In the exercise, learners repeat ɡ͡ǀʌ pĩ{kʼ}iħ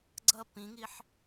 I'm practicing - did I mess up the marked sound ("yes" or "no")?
yes